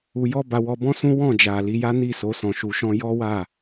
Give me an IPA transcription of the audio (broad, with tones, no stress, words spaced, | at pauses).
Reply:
u˧jɔ˦ ba˧wɔ˧bɔ̃˦ sũ˦wɔ̃˦˨d͡ʒa˨ li˨˦ja˦ni˦˨so˨˦ sɔ̃˧ʃu˧ʃɔ̃˦ jɔ˦wa˦˨